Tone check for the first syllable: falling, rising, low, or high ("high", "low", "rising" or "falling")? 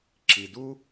low